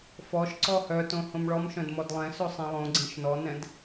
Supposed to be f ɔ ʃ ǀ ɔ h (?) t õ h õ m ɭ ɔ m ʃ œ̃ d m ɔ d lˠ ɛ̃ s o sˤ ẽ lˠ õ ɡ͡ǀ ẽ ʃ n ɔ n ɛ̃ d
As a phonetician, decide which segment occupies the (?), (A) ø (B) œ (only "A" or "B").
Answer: B